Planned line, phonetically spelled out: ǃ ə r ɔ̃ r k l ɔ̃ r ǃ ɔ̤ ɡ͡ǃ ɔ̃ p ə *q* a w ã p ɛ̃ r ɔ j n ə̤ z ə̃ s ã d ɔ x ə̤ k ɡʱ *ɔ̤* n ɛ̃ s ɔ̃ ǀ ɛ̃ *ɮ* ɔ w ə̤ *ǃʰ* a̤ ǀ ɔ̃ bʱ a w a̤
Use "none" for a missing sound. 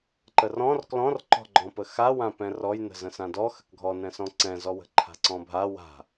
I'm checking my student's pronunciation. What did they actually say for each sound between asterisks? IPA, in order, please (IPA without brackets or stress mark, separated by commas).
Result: x, ɔ, z, ǃʰ